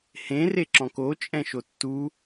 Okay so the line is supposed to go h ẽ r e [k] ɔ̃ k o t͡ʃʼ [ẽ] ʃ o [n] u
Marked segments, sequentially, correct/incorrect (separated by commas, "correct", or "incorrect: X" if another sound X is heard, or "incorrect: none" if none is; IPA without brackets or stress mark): incorrect: ǁ, incorrect: ɛ̃, incorrect: tː